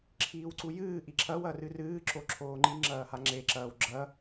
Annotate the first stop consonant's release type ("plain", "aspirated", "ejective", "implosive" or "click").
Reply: click